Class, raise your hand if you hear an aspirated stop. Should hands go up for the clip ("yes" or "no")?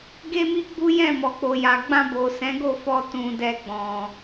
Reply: no